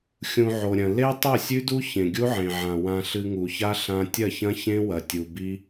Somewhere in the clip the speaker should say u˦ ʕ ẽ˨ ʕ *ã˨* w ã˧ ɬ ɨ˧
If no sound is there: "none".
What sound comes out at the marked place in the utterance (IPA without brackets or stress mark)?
ã˨